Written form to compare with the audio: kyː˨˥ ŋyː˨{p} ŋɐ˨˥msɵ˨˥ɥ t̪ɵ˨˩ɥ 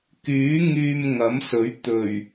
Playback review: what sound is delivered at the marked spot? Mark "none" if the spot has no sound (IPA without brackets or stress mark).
m